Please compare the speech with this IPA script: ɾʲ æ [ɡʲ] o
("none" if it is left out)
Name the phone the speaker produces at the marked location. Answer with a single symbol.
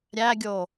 ɡʲ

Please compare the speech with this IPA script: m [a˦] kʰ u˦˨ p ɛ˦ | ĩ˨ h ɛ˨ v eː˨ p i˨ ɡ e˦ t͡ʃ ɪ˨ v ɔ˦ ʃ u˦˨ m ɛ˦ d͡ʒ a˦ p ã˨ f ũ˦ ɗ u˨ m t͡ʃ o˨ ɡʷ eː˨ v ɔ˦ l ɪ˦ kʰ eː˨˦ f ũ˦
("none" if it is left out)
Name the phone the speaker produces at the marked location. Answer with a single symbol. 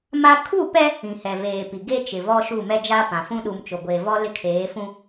a˦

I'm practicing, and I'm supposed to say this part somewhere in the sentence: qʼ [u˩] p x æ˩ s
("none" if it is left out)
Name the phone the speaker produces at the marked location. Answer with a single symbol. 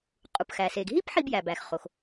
u˩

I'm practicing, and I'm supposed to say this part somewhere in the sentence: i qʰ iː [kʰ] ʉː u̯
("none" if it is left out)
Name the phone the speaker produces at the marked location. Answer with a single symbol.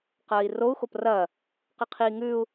ŋ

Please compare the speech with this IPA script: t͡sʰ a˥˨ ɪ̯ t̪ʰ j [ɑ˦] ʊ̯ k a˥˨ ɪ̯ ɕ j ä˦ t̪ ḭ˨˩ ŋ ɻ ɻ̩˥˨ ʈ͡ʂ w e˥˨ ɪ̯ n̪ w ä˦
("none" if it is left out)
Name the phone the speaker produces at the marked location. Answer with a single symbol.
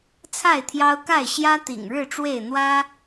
ɑ˦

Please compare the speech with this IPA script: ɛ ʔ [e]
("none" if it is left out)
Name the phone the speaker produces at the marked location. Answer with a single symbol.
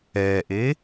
e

